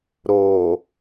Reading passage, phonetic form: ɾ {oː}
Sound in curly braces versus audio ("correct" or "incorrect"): correct